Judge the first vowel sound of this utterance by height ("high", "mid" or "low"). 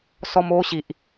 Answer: mid